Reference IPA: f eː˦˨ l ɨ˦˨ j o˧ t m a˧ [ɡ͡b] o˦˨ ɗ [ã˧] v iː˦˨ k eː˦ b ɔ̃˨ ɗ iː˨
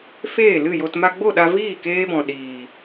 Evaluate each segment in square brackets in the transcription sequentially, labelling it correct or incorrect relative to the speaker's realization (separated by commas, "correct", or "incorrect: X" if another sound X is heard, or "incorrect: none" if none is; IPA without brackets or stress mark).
correct, incorrect: a˧